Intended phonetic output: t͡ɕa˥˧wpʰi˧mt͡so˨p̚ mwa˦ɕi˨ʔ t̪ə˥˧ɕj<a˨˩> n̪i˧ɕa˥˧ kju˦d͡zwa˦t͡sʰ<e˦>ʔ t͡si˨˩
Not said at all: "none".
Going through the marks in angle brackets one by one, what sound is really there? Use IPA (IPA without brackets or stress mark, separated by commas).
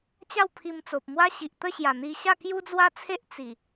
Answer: a˨˩, e˦